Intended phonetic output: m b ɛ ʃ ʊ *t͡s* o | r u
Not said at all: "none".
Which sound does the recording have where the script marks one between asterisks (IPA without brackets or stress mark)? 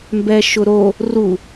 ɾ